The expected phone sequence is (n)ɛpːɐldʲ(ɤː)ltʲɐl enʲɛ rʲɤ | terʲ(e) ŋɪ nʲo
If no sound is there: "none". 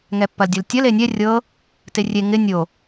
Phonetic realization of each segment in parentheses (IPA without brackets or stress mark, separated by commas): ŋ, ɤ, e